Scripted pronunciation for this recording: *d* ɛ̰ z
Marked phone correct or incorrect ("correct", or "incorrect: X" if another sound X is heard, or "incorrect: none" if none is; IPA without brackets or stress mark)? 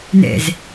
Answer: incorrect: n